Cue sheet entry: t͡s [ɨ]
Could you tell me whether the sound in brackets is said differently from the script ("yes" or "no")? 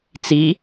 yes